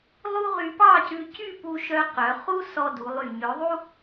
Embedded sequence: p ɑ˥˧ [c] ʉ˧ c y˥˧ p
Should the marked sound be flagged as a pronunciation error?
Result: no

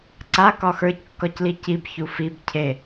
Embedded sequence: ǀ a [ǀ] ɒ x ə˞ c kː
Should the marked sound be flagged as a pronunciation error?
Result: yes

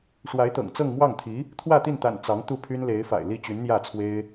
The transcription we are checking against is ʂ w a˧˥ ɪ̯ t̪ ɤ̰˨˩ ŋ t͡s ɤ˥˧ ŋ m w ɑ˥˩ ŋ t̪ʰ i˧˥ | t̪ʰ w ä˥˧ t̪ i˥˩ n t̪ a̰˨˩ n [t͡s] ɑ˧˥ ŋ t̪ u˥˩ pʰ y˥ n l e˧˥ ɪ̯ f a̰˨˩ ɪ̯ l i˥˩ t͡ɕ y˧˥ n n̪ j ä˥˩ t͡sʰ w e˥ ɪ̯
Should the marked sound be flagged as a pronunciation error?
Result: no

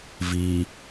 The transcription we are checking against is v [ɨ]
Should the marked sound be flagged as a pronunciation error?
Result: yes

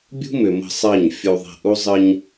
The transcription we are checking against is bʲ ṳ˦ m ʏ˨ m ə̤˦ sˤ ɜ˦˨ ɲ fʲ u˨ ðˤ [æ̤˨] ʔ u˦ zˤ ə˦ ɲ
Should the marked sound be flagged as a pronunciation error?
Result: yes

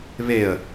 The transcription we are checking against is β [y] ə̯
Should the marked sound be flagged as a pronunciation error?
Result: yes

